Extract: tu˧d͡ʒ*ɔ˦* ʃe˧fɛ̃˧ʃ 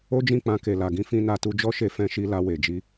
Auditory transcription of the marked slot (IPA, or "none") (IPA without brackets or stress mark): ɔ˦